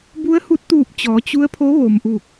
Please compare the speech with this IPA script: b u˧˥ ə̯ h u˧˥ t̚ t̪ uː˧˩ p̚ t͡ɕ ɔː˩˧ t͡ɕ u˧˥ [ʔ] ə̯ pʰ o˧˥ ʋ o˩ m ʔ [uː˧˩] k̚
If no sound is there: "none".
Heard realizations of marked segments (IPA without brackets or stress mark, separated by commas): none, uː˧˩